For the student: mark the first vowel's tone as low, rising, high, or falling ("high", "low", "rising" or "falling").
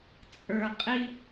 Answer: low